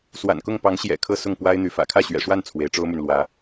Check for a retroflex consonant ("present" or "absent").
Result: present